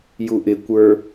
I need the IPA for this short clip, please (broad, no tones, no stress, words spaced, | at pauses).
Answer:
juʔɪkʷə˞